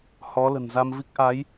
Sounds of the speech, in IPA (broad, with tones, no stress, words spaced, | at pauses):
hɔ˨˦lə̤˨˩nza˧mvi˦˥k̚ ʔa˨˦j